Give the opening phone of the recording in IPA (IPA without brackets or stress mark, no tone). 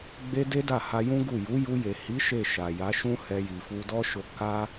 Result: ɡ͡b